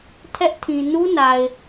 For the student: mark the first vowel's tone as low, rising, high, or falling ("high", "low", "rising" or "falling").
high